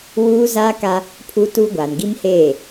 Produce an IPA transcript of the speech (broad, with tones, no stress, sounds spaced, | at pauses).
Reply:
w uː˦ z a˦ k a˦ | pʰ u˦ t u˦ ɡʷ aː˨ n ɡ i˦ m h eː˦˨